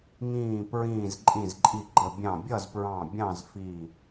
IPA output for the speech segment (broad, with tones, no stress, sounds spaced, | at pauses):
ŋ ĩː˧˩ p ɹ ĩː˧˩ z ǃʼ ĩ˧˩ z ǃʼ i˧˩ ɡ͡ǃ ə˧˩ bʲ ɑ̃˧˩ bʲ ʌ˥˨ z p ɹ ɑ̃˧˩ bʲ ɑ̃˥˨ z f i˧˩